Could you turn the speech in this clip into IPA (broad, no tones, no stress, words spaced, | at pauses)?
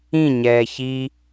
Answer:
ĩɲɛː çi